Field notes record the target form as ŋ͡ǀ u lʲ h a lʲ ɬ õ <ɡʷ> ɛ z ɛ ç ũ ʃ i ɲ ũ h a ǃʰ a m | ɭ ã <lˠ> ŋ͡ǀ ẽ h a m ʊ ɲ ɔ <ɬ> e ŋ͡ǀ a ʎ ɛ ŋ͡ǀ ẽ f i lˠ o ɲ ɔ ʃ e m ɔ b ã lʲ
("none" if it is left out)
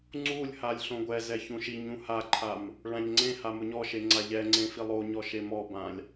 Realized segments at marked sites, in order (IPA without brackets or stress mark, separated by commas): ɡʷ, ʎ, ʃ